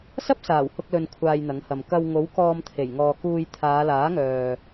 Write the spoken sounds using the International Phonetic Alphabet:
sɐ˥p̚saː˨˩w hʊ˧k̚lɵ˨n kʷʰaː˧jn̪ɐ˨˥ŋhɐ˨m kɐ˧w ŋo˨˥wkɔː˧mt̪ʰe˨˩j ŋɔː˨kuː˧j t̪ʰaː˨˧laː˨˥ŋœː˨

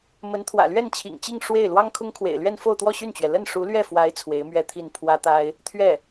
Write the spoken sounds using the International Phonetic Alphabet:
mə˧˥nt̪ʰwä̰˨˩ lɥɛ˥˩nt͡ɕʰḭ˨˩ŋt͡ɕi˥˧ŋ ʂwe˥˩ɪ̯ lwɑ˥ŋkʰʊ˥ŋkʰwḛ˨˩ɪ̯lɥɛ˥˧n fo˥˧ʊ̯t̪wɔ˥˧ɕy˥˩nt͡ɕɥɛ˩ lə˥˩nʂu˧˥lɥɛ˥˩fwa˧˥ɪ̯ t͡sʰwe˧˥ɪ̯mɥɛ˥˧t̪ʰi˥˩n pʰwä˥t̪a˥ɪ̯ | t̪ʰɥɛ˥˩

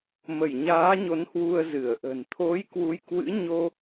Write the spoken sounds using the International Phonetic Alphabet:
mə˧˩jɲaː˨˦ɲo˨˦n hwu˧ə̯zɨ˧˩ə̯ʔə̤˨˩n t̪ʰo˨˦j kwu˨˦jkwɨ̰˧˥ ɲo˧

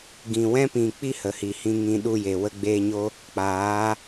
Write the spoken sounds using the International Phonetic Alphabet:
ɡĩ˨ wɛ̃˦pĩ˨k͡pi˦ hə˨hi˨hĩ˧ŋĩ˧ ɗu˧je˨ wə˧ɡ͡beː˧ɲo˦ | k͡paː˨˦

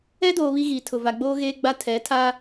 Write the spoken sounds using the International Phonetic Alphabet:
ɛ˦doː˨ βi˦ɣiː˨tʰʊ˨ va˨ɡ͡boː˦ɣeː˦ɡ͡ba˦ tʰɛ˨˦ tʰa˦

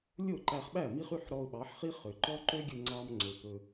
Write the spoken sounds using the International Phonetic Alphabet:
lʲo˥˩ ǃæ˧χɓæ˥˩ mi˥χy˥ħ ɾɔ˧ʊ̯ɓɑ˩˥ħχi˥ χø˩ǃɔ˥ ǃø˥ɡʲɵ˧ŋ͡ǀɑ˧m ŋ͡ǀo˩pɵ˩

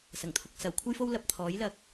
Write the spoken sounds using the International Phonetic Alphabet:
sɐ˨˩ŋt̪ʰʊ˨k̚ sɐ˨˩w kʷʰɐ˥jfo˥wlɐ˧p̚ t̪ʰɔː˨˥jlɐ˧k̚

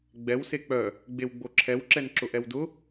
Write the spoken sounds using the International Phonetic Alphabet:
ɡ͡bɛwse k͡pœ | ɡ͡bewɡ͡boǁʰɛwǁɛn ǁʊʔɛwdʊ

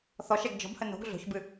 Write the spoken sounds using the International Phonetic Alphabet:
θɔʃɛɡ d͡ʒɔ̤bhə no̤ɡ ɮo̤çbɨ

